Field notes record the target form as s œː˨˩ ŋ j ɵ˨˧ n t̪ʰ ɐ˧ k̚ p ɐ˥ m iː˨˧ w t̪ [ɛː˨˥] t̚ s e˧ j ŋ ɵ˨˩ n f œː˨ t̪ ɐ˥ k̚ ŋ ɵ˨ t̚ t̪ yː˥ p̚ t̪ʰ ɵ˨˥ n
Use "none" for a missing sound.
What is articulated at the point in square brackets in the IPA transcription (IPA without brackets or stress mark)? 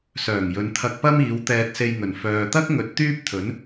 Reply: ɛː˧